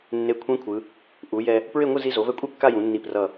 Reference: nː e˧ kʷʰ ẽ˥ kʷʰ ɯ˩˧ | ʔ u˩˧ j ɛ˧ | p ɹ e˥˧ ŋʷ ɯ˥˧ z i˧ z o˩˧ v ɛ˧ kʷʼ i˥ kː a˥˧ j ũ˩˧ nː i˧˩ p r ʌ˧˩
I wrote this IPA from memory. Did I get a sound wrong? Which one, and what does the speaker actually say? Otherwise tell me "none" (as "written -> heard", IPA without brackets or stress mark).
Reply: none